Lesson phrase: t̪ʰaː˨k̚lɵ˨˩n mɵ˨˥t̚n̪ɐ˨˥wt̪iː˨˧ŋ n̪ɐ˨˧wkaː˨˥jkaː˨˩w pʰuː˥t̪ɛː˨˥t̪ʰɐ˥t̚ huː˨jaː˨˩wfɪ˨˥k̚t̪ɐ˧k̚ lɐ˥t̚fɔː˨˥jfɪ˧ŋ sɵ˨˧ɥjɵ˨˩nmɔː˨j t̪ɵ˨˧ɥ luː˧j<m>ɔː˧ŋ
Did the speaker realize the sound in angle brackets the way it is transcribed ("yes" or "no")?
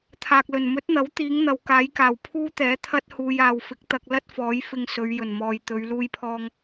no